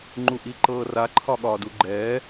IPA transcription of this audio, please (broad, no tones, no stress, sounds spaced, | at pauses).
ŋ͡ǃ u ʔ i ǃ ɤː r a ǃʰ ɒ ɠ ɒː d u ɡ͡ǃ ɛː